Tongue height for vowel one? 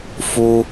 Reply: high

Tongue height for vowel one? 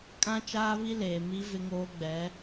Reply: low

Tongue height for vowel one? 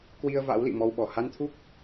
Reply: high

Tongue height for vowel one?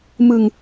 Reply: high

